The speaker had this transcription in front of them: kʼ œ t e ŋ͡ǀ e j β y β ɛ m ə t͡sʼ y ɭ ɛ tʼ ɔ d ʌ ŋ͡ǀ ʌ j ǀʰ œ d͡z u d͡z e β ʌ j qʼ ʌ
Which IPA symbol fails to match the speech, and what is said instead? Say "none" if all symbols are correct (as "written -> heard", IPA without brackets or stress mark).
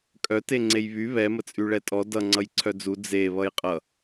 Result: none